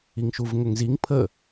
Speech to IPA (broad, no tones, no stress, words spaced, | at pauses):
iŋʃuvŋʏŋziŋ pʰə